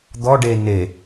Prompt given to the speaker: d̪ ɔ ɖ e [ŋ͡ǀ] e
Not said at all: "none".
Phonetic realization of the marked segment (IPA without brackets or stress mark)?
n